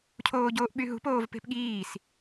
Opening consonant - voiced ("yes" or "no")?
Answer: no